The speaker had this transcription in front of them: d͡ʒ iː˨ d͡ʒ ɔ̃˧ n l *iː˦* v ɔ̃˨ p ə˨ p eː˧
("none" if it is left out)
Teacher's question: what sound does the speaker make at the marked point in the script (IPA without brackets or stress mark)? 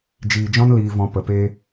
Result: iː˨